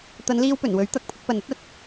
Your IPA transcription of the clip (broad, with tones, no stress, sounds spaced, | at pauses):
t̪ ɐ˨˧ n l iː˧ w p ɵ˨˩ n w ɵ˨˥ ɥ t̪ ɐ˨˥ k̚ pʰ ʊ˧ k̚ p ɐ˨ n ɐ˥ t̚ ɐ˨˥ t̚